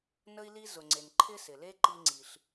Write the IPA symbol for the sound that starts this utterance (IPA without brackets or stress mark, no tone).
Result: n